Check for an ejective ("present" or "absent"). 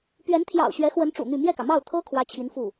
absent